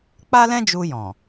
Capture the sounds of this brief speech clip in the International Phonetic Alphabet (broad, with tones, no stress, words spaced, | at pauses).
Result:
k͡pa˦lɛ̃˦d͡ʒu˧jɔ̃˨